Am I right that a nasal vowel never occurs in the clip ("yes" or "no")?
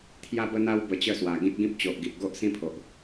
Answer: no